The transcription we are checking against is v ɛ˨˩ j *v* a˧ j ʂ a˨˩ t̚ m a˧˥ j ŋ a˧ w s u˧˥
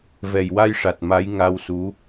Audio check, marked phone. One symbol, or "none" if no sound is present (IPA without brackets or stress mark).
w